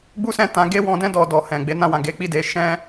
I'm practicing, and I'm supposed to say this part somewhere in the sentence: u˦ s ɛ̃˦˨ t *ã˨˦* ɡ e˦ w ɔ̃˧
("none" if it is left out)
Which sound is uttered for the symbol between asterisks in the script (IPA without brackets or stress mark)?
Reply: ã˨˦